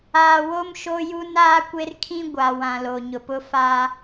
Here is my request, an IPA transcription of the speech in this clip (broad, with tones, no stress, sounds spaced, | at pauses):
aː˨ w o˦ m ʃ o˦ j u˦ n aː˦ kʷ e˦ r kʰ ĩ˦ ɡʷ a˨ w ã˨ l o˨ ɲ ʊ˨ p ʊ˦ f a˦